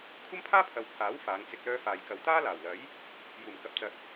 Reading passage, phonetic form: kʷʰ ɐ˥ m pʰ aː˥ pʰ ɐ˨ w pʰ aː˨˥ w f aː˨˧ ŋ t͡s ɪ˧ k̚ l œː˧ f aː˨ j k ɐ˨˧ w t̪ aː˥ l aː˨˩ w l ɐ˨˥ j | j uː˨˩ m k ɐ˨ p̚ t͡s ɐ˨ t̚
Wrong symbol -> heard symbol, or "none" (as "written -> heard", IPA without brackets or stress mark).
none